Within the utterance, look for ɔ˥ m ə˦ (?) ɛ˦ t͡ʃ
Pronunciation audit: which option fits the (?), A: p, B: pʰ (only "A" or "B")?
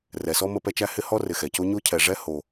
A